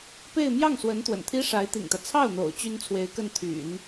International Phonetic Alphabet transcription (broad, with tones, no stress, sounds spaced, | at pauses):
p e˥˧ ɪ̯ m j ɑ˥˩ ŋ s w ə˧˥ n t̪ w ə̰˨˩ n t̪ʰ i˥ ʂ a˧˥ ɪ̯ t̪ ḭ˨˩ ŋ t̪ ä˦ t͡sʰ ɑ˥˩ ʊ̯ n̪ o̰˨˩ ʊ̯ t͡ɕ y˥ n t͡sʰ w e˧˥ ɪ̯ k ə˥˩ n t̪ʰ y̰˨˩˦ n